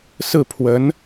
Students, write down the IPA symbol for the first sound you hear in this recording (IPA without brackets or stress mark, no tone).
s